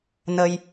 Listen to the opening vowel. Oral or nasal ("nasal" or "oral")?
oral